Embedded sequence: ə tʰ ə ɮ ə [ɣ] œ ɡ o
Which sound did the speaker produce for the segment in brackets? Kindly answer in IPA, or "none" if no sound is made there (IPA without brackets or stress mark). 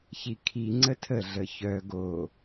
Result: ç